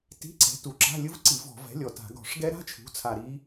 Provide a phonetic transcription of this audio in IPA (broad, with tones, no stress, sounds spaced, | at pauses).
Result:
t i̤˧˥˧ ǀ ɛ̤˩˥ t u˨˩ ǁ a̤˧˥˧ lʲ ɯ˦˥ v ǀ i˧˩˧ v ɔ̤˧˩˧ v ɛ̤˩˥ lʲ ɔ˨˩ t a̤˧˩˧ ɡ ɔ̤˧˩˧ ʂ ɡ ɛ˦˥ ɾ a̤˧˥˧ t͡ʃʰ ṳ˩˥ t͡sʰ a˨˩ ɾ i˦˥